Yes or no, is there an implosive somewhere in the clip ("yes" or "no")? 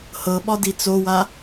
yes